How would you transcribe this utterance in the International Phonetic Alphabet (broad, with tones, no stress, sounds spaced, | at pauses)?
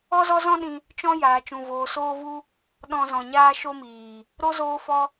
ɔ˦ z ɔ˦ z ɔ̃˦ ɗ ĩ˧ | t͡ʃ ɔ̃˦ j aː˧ t͡ʃ ũ˧ v oː˧ s oː˦ v u˦ | ɗ ɔ̃˦ z ɔ̃˧ ɲ aː˦ ʃ o˦ m iː˨ | ɾ o˦ z oː˦ f ɔ˦